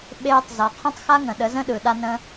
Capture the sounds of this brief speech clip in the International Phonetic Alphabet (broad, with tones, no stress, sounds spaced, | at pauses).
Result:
ɓ eː˦ tˤ z ɒ˨ qʰ ə̃˦ tˤ x a˦ ŋ ə̃˨ ɗ ə˨˦ z ə̃˦ ɗ ɯ˨ ɗ a˦ n ə̃˦